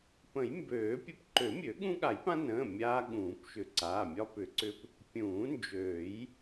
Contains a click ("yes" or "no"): yes